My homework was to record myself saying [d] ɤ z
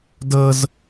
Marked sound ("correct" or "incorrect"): correct